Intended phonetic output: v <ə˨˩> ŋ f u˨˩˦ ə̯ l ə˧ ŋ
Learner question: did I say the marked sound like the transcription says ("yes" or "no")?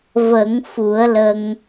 no